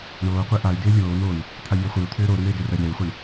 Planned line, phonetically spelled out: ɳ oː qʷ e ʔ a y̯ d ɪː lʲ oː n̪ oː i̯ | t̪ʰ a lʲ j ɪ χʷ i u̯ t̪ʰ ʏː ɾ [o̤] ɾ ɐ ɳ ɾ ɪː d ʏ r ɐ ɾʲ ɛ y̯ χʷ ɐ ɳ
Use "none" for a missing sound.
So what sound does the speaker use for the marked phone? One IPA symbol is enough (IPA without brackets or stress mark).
o